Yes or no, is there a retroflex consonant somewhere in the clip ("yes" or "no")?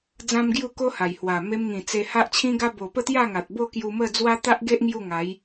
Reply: no